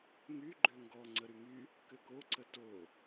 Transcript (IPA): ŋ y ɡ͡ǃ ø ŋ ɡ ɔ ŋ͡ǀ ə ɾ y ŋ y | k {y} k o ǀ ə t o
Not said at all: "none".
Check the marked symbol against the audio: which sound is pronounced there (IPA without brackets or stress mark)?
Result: ø